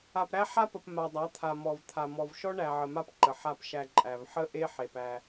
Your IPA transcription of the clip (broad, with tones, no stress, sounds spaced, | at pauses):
a˨ p ɾ æ˦ ħ a˦ p ə˨ p m a˨ dˤ a˨˦ t̪ʰ a˨ m ɔ˨ v t̪ʰ a˨ m ɔ˨ v ʃ ɔ˦ ɳ æ˨ ʕ ə˨ m a˦ p ǃ ə˨ ħ a˨ p ʃ æ˨ ǃʼ æ˨ v ħ ə˦ ʔ e˦ ħ e˨ p æ˦